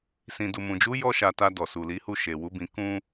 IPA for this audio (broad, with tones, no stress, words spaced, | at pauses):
sĩ˨du˨mũ˨d͡ʒu˨˦ jɔ˦ʃa˧ta˧ dɔ˨su˨li˨˦hu˦˨ ʃe˨wu˨˦bĩ˧ kũ˦